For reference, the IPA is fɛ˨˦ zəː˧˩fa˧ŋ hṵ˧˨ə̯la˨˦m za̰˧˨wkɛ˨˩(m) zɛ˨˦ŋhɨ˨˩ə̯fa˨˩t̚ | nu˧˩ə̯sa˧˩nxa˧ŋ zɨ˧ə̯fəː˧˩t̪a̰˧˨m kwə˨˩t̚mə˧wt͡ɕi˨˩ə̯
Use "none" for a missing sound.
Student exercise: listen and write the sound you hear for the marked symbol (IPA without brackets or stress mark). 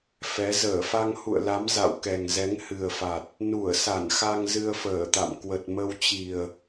ŋ